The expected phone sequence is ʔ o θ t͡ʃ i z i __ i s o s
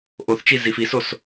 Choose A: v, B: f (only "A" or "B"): B